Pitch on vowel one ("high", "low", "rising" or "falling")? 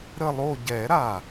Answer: falling